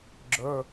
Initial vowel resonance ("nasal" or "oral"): oral